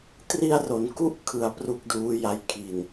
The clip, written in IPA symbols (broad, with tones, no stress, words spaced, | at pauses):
tri˧a̯ro˩˦n ku˦˥ʔkʰɯ˨˩a̯ pru˥˩k̚duː˦˥ja˦˥jkʰi˨˩n